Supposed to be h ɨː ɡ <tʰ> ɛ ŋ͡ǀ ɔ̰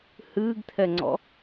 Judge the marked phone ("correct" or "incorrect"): correct